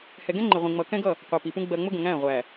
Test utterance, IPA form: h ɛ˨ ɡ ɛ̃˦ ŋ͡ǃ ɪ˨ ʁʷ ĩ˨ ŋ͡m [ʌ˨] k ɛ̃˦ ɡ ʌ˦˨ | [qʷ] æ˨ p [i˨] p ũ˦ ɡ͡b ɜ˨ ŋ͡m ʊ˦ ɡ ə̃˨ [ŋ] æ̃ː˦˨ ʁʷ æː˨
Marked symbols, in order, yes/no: yes, yes, yes, yes

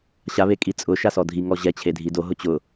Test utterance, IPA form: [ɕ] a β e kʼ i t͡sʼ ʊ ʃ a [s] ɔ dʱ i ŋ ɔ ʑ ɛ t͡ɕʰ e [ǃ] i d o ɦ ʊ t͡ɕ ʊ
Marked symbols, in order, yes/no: yes, yes, no

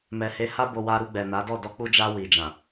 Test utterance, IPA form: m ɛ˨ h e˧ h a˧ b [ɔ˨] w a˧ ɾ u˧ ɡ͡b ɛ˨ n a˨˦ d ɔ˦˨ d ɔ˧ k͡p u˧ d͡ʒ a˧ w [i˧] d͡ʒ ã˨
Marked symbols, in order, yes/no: no, no

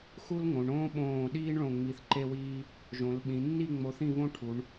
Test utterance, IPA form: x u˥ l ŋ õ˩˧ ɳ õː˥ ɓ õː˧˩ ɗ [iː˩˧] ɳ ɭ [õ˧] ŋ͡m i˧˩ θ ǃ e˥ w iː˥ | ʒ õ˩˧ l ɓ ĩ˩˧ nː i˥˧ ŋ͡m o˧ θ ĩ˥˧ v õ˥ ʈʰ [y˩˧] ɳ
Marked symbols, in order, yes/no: no, no, no

